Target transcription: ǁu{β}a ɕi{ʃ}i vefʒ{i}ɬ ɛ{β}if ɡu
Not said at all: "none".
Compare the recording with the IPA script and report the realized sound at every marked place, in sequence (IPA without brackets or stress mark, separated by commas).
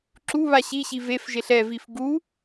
β, ɕ, e, v